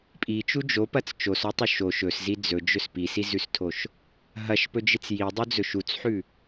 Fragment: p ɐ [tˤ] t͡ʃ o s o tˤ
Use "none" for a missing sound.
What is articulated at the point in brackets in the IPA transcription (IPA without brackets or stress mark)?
t͡s